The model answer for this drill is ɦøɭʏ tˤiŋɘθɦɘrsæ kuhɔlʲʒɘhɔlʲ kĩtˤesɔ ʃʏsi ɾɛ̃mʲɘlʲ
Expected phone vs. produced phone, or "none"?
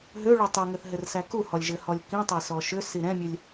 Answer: none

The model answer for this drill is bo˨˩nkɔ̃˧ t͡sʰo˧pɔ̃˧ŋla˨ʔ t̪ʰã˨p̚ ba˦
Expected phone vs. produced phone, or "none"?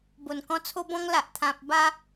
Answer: p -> b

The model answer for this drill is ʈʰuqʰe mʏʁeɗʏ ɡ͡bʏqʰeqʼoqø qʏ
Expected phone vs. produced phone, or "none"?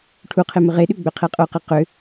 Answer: ø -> e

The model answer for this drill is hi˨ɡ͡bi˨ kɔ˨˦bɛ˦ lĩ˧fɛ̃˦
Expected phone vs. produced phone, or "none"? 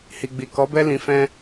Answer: none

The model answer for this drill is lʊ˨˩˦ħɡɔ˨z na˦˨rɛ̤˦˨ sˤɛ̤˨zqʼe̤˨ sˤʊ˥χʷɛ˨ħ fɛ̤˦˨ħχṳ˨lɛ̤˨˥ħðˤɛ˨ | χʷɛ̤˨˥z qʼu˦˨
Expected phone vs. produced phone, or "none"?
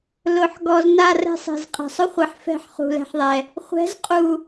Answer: none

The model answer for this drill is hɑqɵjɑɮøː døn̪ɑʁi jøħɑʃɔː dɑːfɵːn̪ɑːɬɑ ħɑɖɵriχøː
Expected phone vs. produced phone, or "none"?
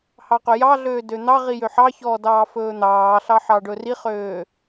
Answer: ʃ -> ç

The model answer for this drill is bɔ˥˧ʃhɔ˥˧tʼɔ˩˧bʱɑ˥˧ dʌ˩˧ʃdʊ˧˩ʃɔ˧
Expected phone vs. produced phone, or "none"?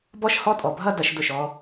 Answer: ɑ˥˧ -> ʌ˥˧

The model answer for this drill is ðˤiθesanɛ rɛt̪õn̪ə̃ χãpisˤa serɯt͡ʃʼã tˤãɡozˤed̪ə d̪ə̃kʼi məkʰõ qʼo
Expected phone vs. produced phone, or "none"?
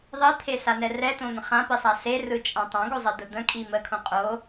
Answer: θ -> t̪ʰ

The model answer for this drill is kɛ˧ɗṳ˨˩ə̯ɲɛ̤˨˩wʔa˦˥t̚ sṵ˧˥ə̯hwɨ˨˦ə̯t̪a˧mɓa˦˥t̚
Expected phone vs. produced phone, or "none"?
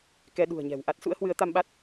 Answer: none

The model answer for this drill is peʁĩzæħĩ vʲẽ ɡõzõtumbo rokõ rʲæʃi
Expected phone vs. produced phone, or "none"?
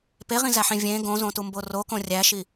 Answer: none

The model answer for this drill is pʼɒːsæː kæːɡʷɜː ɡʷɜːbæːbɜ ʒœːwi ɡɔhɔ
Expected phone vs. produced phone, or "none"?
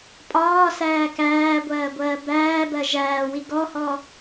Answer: œː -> æː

